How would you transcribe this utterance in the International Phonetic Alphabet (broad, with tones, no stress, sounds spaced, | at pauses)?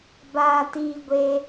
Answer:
b aː˧ t iː˧ ɡʷ e˧